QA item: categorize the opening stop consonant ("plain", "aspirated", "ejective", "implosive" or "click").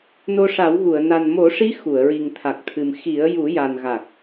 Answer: aspirated